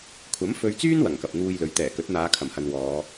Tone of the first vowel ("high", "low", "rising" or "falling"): rising